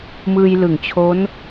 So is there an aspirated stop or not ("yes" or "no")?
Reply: yes